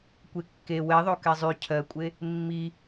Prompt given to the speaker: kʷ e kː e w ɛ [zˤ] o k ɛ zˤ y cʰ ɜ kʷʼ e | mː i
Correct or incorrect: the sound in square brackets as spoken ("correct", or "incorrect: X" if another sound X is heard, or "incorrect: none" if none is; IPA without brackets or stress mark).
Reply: incorrect: ðˤ